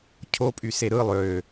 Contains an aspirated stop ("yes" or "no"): yes